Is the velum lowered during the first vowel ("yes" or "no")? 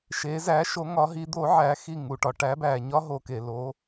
no